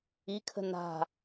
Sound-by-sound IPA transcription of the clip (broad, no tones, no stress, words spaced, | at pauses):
ikʰə̤ na̤